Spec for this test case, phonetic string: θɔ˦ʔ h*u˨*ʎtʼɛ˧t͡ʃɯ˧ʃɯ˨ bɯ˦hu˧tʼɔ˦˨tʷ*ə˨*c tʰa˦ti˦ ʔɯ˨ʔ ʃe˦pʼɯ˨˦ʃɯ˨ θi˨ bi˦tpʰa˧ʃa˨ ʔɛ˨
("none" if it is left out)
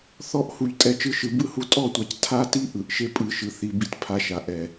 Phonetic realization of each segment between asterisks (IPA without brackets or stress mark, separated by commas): u˨, a˨